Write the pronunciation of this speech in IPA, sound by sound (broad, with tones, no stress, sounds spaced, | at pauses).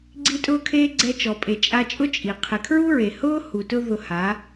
ɡ͡ǀ i˧ tʼ ʊː˦ kʰ eː˦ ɡ͡ǀ ɛ˧ t͡ʃ ɔ˨ pʼ e˨ t͡ʃʼ a˧ t͡ʃʼ ʊ˦ t͡ʃʼ i˨ qʰ ɪ˨ kʰ ɹ u˦ ɹ e˨ h ʊː˦ h u˨ t ʊ˧ ð ʊ˧ h a˨˦